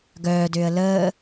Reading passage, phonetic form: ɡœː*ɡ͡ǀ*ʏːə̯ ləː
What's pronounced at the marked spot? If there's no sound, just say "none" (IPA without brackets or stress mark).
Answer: d